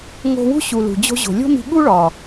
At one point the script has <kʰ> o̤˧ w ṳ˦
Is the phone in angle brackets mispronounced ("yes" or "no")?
yes